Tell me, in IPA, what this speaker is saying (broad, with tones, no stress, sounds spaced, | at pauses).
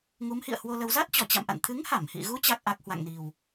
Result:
ŋ u˨˦ m h ḭ˧˨ ə̯ h w o˧ l ə˧ w z a˦˥ t̚ t͡ɕ ɔ˧˩ t͡ɕ a̰˧˨ m ʔ a̰˧˨ n t̪ʰ ɨ˨˦ ŋ h a˧˩ m h ḭ˧˨ ɣ u˨˦ t͡ɕ a˦˥ k̚ ʔ a˦˥ k̚ h w a̰˧˨ ŋ n i˨˩ w